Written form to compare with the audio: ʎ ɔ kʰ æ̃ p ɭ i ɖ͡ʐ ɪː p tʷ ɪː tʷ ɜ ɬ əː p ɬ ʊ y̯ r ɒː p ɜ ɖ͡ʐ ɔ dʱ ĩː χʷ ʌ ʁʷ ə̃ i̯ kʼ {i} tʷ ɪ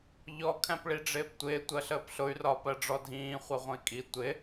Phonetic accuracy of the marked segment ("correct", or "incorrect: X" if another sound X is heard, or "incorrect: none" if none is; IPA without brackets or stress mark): correct